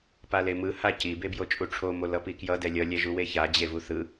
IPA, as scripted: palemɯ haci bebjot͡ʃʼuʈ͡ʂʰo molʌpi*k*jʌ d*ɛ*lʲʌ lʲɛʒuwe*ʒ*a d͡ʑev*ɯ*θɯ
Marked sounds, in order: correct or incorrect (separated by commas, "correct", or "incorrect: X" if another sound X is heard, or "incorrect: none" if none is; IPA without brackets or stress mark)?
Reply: correct, correct, incorrect: ç, incorrect: u